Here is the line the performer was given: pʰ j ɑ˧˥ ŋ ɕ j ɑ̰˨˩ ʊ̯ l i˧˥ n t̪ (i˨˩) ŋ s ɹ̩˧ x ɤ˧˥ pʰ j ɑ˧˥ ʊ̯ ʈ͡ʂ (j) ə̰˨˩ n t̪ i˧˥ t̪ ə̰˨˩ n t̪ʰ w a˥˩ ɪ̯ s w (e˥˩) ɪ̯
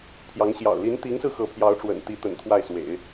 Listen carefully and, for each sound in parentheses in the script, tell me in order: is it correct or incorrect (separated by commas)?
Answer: incorrect, incorrect, incorrect